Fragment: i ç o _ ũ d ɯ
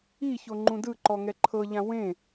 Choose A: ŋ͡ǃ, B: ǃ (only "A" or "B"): A